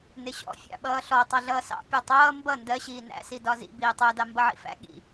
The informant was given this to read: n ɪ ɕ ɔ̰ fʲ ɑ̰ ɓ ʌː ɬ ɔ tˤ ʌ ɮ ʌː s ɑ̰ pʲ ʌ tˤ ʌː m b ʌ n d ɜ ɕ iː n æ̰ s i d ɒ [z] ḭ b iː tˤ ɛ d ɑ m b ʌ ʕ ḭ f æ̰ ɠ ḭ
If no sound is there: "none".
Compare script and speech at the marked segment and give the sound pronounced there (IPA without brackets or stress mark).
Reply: z